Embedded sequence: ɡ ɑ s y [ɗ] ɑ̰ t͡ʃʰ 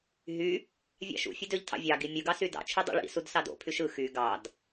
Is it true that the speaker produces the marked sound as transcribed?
no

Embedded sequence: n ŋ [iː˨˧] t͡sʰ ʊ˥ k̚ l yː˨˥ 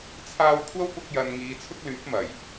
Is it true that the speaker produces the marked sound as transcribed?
yes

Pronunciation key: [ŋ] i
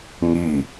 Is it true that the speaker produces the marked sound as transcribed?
yes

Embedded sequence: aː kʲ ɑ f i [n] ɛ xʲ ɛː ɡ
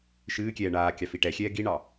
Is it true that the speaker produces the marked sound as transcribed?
no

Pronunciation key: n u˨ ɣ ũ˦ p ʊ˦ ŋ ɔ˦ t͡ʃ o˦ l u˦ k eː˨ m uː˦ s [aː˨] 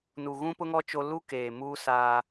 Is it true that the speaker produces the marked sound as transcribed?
no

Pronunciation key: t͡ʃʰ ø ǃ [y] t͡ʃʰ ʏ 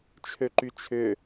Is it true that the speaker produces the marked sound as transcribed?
yes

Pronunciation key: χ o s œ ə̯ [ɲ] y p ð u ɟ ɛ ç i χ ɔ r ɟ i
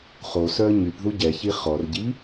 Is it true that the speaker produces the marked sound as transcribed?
yes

